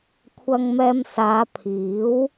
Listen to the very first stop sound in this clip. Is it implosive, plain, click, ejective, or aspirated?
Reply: aspirated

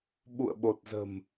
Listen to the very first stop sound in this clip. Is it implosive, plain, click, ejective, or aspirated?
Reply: implosive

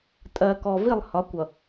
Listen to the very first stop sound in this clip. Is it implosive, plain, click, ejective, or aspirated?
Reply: ejective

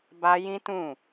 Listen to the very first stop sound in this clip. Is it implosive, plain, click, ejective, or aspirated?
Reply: plain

